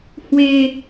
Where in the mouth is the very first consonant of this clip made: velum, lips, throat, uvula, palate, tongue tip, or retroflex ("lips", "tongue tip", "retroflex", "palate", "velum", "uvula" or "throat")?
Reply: throat